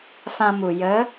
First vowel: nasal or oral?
nasal